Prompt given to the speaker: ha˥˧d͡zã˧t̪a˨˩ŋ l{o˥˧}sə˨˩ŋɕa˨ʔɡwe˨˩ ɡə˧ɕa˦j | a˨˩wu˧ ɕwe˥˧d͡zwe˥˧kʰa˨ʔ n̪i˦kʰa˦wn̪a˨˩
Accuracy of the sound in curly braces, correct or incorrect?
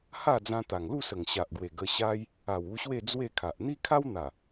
incorrect